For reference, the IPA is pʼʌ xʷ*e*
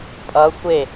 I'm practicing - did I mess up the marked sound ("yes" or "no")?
no